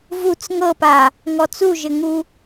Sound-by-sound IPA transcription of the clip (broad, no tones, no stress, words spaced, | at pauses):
vut͡s ŋɤpa | ŋɔt͡suʒɘŋu